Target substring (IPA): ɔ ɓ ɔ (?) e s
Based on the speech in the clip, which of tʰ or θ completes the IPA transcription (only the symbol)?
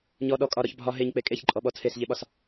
tʰ